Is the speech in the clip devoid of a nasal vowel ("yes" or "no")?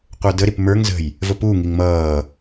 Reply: yes